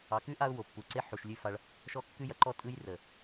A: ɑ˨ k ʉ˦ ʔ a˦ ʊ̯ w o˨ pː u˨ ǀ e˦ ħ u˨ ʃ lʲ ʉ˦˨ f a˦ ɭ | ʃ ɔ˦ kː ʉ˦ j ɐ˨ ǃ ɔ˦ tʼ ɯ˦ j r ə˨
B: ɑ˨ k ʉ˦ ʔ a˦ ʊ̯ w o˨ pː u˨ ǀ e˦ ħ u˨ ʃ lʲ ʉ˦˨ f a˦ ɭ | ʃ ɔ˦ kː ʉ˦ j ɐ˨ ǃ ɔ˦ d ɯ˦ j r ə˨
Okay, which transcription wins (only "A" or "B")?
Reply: A